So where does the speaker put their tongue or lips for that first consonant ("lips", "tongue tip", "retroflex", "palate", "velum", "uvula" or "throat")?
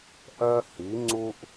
throat